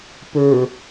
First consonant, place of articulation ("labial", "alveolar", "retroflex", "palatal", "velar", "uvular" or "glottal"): labial